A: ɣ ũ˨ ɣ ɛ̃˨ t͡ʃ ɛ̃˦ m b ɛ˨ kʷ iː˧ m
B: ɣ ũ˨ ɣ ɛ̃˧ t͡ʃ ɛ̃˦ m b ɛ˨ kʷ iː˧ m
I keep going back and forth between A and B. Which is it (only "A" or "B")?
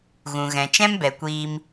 A